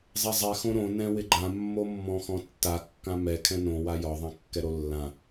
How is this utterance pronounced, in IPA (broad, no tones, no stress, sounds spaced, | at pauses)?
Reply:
zˤ ɛ zˤ ɛ x õ ɾ õ n ɛ̃ w ɪ ɡ͡ǃ ã mː o mː ɔ̃ x ɔ̃ tː a kː ã m ɛ kʰ ɛ̃ n õ w a j ɒ ðˤ ã kː ɛ ɾ o lː ã